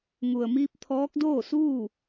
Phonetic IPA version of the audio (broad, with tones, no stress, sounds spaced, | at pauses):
ŋ u˩ ə̯ m iː˧ p̚ t̪ʰ ɔː˧˥ k̚ d oː˥˨ s uː˥˨